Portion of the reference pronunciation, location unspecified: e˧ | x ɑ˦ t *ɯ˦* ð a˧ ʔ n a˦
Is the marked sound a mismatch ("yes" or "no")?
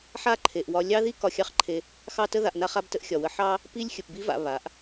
yes